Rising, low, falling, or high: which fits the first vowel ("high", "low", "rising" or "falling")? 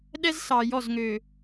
high